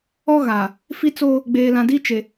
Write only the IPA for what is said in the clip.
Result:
ɔ˦ɣaː˨ | fi˦t͡soː˦ | ɡ͡beː˨lã˨di˦t͡ʃe˨

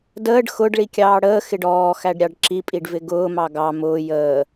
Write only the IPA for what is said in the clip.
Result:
dəːɖ xʊɖ ɭikʲɑːɽəː xɪɖɔː xæɖɾʲɑɖǁi pʼiɖvɪɡʊː mɑɡɑ mʊː jəː

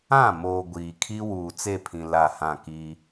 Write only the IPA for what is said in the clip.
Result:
ã˦˨moː˨ ɡʷiː˨kʰi˦ wuː˨t͡se˦˨pʰĩ˨ la˦˨hã˦˨kiː˦

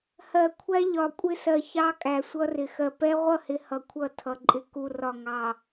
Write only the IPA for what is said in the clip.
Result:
hɜ˨kʷʰæ˦ʎɒ˨ kʷʼɪ˦sɜ˨ çɑ˦ kʼæ˨sʷʌ˦rɪ˨ xɜ˨pɛ˦ ʁʷʌ˦˨hɪ˨ hʌ˨ kʷʰʌ˦˨ tʰʌ˨ǃʼɪ˨ ku˨rɒ˨ ŋɑ˨

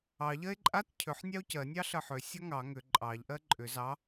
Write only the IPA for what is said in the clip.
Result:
ɑʎɜe̯ ǃʼat cʰʏħnʲɑo̯ cɜnʲɑɬɜħ ʏ sʲɔŋɑ ŋʏ ǃʼɑʎʔɜ ǃʼʏ zɑ

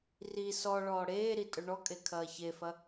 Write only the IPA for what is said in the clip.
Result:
ri sɔ ɭɔːɽeːɾi tʼɵɳɔkʼe kʰɐːçefɐ

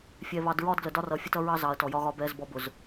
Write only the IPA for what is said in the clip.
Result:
fʲɛ˨βɑ˨d ɹɒ˦dɡlə˨dɒ˦ rʌ˨fʲə˦t ʌ˦ɹɑ˦zɑ˨ɐ̯ tɔ˨jɒ˦ɣɒ˦ bɛ˦zbɔ˦ bʊ˨z

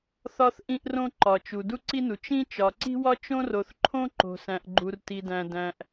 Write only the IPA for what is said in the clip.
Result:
θɒ˥θʔĩ˥ʔrõ˥ ǃɒ˩t͡ʃu˩ du˥ǀi˥nu˩ t͡ʃĩ˥ t͡ʃɒ˩ǀi̤˥wɒ˥ t͡ʃõ˥ro˩θǃʰõ˥ ǃo̤˩sæ̃˩ʔɡ͡ǃu˩r ti˩dæ̃˩ dæ̃˩ʔ

